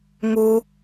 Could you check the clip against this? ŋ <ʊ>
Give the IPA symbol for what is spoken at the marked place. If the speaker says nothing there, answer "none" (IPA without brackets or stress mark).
u